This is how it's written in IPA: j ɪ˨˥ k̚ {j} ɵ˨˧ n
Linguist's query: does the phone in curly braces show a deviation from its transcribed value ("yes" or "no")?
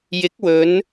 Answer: yes